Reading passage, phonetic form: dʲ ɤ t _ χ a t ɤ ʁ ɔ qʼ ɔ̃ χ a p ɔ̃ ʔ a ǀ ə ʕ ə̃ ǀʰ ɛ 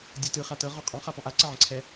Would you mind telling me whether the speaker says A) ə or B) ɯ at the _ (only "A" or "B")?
B